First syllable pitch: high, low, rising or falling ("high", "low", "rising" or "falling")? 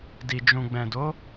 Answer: low